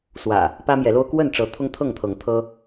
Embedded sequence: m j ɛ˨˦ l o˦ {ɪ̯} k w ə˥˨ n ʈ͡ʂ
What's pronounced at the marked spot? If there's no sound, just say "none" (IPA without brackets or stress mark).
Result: ʊ̯